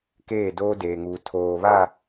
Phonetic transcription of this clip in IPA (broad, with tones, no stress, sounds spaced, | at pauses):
k eː˦˨ d oː˦ d eː˨ ŋ uː˨ tʰ oː˨ β a˦˨